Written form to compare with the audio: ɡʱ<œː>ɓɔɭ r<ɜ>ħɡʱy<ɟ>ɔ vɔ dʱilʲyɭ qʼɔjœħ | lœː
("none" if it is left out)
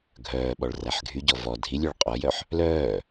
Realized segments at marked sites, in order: œː, æ, ɟ

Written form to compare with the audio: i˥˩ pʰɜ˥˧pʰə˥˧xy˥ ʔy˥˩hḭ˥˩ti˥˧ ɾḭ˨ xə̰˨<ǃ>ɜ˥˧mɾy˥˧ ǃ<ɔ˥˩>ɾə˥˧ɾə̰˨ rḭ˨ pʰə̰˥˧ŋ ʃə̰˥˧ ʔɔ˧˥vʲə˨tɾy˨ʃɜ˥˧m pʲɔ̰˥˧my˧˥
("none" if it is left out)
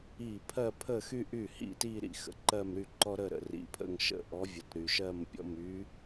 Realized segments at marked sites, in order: ǃ, ɔ˥

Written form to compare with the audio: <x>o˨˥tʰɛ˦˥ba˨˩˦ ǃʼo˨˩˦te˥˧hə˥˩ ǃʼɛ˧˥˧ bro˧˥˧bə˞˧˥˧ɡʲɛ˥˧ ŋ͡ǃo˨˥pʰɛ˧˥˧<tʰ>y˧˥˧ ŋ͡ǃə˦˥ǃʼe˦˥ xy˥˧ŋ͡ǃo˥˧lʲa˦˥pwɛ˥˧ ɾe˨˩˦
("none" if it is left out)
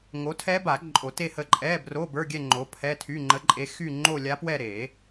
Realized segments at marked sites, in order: ŋ, tʰ

